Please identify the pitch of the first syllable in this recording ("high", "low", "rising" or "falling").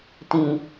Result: low